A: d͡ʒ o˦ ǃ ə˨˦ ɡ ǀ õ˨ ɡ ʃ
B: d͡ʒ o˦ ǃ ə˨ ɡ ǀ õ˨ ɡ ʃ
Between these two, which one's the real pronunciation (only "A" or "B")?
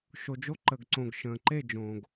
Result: B